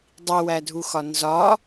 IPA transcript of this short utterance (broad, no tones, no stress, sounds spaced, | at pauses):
dˤ i w æ dʱ u x ɒ n z ɒ